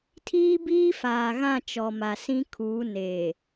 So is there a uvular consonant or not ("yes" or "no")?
no